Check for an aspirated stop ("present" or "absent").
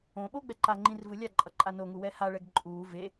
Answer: absent